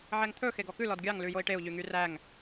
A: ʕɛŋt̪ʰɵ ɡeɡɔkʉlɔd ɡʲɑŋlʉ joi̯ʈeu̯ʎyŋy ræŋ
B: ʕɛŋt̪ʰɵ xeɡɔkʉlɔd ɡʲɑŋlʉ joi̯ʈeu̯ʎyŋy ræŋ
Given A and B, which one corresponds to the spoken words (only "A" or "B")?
B